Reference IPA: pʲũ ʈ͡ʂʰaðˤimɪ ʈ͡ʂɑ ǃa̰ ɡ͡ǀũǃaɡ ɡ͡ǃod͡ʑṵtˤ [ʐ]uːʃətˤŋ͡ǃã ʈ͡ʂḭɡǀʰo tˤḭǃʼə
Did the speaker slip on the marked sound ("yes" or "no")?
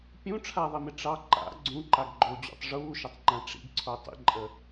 no